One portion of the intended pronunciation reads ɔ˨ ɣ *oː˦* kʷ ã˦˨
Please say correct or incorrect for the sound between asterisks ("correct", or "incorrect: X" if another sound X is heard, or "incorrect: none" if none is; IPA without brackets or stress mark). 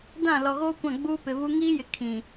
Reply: correct